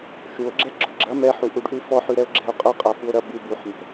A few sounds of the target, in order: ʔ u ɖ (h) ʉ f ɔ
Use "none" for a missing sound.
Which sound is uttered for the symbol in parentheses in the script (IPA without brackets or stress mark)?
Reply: ʔ